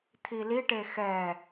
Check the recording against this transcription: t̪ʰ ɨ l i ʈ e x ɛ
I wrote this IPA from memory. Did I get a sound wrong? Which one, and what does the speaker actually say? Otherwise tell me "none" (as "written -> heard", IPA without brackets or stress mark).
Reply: ɨ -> i